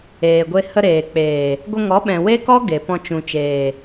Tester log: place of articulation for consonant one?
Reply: velar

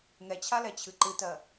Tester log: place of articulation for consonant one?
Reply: velar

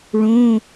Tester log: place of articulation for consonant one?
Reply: retroflex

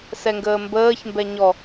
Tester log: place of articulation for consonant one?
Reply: alveolar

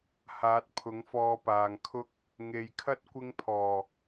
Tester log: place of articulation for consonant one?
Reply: glottal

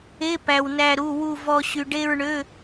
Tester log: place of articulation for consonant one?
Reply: labial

